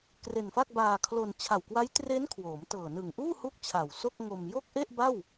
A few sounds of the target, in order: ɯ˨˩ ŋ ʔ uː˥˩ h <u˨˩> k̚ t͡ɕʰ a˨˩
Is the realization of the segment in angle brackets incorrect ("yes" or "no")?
yes